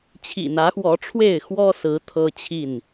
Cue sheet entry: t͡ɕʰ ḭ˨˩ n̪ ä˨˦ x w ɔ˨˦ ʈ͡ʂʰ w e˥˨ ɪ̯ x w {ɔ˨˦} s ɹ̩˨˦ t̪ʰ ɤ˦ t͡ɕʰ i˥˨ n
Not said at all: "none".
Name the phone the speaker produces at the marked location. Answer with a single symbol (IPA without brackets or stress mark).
ɔ˦